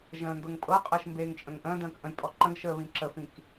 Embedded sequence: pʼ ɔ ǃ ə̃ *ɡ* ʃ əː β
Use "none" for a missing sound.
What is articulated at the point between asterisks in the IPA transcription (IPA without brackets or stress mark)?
ɡ